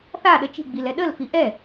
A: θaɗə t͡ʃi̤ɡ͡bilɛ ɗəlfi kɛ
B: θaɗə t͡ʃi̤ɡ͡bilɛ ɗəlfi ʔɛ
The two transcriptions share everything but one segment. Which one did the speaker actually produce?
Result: B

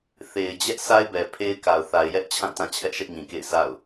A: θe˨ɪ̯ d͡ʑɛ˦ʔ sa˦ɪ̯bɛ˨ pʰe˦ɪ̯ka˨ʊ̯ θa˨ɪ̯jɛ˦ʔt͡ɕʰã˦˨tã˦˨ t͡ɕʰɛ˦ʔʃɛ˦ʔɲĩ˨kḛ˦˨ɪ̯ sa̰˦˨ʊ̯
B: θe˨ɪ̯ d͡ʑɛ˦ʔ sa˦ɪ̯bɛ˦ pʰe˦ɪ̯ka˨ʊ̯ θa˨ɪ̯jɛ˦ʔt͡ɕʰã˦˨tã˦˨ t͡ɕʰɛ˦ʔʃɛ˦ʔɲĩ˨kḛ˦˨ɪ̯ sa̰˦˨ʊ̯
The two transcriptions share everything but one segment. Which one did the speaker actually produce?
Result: A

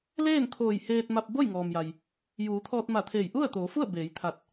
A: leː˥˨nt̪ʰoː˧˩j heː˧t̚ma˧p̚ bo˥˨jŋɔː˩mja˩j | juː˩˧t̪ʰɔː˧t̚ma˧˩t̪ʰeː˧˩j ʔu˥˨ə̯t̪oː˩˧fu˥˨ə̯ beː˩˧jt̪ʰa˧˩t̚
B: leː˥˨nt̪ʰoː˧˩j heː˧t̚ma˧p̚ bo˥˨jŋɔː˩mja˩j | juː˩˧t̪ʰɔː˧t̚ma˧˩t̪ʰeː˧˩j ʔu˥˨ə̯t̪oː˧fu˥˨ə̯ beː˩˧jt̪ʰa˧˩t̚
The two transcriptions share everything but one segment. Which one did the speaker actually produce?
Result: A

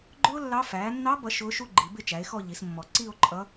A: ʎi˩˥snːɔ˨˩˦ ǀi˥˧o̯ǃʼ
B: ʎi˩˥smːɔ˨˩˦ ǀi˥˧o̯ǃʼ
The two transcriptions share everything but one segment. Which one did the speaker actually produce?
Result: B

